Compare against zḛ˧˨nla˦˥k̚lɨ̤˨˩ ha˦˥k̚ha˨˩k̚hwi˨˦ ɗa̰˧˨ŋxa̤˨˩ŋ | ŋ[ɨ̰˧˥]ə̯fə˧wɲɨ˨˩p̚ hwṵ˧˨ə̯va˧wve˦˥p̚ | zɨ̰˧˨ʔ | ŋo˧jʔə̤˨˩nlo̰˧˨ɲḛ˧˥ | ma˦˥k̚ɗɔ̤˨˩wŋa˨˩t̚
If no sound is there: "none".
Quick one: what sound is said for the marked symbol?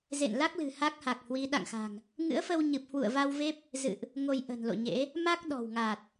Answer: ɨ̰˧˥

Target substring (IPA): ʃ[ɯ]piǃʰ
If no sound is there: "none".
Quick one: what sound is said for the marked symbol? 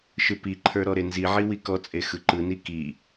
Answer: ɯ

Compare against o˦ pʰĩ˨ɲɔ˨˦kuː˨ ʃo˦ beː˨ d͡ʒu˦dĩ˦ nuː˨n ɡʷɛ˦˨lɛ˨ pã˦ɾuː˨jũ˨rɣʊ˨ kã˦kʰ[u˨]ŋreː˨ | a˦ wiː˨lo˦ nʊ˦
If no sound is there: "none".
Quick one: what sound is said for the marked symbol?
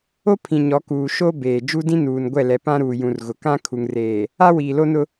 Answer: u˨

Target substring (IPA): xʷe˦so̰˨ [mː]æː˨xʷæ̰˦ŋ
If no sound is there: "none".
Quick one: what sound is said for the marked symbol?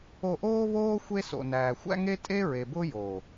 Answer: n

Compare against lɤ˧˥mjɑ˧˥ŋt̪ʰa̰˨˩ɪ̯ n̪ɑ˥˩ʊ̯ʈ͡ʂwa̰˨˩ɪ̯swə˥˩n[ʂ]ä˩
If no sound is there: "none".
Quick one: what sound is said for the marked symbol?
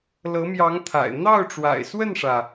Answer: ʂ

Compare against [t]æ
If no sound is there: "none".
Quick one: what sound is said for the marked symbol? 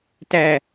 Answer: t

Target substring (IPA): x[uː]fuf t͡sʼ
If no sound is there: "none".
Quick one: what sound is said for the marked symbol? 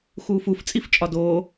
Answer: uː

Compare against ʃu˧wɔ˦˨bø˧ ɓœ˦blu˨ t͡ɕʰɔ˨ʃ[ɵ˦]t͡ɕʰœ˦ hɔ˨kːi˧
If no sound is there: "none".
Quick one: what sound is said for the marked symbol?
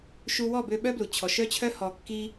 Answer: œ˦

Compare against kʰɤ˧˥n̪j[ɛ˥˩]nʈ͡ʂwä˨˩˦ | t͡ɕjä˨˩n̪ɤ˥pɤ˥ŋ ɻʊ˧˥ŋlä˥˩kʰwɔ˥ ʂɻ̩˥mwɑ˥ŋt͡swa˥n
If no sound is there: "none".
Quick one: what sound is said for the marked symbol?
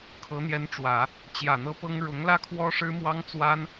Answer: ɛ˧˥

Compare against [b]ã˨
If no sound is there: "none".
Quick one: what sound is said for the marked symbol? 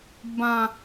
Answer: b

